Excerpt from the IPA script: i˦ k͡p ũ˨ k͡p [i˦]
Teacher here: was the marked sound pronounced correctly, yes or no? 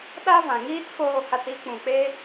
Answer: no